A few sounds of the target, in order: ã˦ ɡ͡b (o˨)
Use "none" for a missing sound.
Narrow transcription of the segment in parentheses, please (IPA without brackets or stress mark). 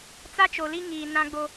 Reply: o˦